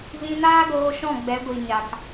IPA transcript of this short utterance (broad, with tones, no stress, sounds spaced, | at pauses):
v ĩ˧ n aː˦ ɡ oː˧ ʃ ɔ̃˦˨ ɡ͡b ɛ˨˦ ɡʷ i˨ ɲ a˨ k